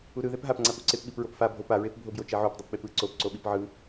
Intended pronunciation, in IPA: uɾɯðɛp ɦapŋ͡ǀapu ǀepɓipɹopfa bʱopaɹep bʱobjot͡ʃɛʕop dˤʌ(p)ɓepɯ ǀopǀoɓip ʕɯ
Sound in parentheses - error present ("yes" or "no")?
no